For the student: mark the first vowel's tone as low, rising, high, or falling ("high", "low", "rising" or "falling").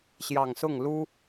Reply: low